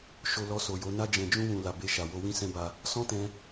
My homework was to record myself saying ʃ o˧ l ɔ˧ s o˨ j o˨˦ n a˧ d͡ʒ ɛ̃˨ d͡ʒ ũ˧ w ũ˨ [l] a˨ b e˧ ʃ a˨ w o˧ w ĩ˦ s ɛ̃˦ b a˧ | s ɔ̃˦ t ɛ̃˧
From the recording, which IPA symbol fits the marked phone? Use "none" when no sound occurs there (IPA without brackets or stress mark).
l